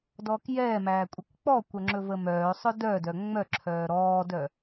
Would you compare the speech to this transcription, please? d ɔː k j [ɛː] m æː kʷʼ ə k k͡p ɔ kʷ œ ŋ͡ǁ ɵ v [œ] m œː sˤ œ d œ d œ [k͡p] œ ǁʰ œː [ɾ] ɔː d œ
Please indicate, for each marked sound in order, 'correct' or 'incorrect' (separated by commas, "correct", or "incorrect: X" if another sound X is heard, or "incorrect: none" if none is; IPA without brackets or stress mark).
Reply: correct, incorrect: ə, incorrect: ŋ͡m, correct